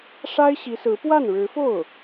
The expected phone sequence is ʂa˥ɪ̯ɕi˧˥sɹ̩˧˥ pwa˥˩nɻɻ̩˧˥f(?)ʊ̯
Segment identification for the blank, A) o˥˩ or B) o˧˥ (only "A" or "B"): A